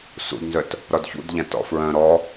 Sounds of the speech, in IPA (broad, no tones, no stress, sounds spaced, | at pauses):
s ṵ d n z œ t | ɾ ɒ d ç ṵ d ʎ ã t ɔ̰ f ɹ œ̃ ɾ ɔ